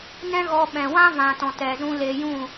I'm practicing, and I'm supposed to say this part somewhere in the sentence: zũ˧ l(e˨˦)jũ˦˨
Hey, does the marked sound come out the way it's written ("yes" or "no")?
no